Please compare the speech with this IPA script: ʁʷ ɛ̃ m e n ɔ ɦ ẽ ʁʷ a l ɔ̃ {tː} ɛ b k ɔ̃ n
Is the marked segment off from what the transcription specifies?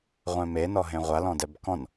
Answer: yes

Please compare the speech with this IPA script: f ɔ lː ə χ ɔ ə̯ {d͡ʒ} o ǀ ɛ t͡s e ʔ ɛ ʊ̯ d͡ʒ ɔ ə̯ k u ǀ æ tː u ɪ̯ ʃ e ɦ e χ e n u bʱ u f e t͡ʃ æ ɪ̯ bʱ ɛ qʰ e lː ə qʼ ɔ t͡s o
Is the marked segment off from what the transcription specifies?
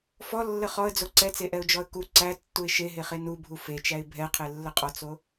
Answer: yes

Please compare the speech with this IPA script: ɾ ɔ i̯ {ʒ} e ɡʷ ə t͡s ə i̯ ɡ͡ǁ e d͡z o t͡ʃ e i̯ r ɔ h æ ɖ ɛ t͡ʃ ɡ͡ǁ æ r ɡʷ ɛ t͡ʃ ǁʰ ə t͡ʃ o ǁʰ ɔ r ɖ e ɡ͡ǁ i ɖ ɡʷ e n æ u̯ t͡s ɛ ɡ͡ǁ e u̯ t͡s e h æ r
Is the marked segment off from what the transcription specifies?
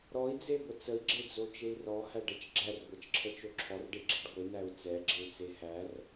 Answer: yes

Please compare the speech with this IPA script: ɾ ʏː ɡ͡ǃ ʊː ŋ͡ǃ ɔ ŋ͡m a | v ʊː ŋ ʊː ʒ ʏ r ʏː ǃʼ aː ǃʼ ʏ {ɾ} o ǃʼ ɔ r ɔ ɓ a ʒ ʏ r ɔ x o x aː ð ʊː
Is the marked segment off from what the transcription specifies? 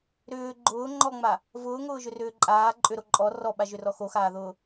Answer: no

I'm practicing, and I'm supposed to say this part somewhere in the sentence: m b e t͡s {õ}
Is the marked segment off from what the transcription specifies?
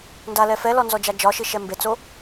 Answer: yes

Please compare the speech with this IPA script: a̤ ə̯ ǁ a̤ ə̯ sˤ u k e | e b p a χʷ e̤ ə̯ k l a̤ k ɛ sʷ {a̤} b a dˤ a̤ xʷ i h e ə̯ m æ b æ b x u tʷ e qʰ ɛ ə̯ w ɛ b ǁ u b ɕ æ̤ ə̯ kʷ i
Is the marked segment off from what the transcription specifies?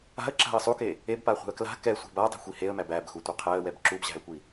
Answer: yes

